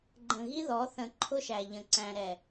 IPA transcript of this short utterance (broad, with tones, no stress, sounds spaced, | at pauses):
ɡ͡ǃ ə̃˨ ɣ i˦ ð ɔ˨˦ θ ə̃˨ ǃʰ ʊ˦ ʃ æ˨ ʎ ə̃˨ ǀ æ̃˨ ɾ ɛ˨